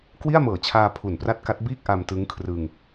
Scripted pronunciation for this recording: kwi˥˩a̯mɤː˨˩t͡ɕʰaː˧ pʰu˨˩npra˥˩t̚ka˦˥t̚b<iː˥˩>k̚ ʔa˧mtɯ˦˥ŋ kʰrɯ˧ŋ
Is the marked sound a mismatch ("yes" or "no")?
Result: no